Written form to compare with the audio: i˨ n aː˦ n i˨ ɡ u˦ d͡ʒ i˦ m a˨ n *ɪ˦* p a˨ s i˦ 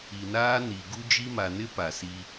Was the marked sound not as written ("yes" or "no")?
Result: no